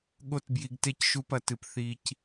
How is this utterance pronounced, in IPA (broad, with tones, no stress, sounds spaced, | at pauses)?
ɠ o˧ t b j i˨ ɡ t e˧ c ʃ u˧ p ɐ˨ t ɨ˨ p θ i˧ c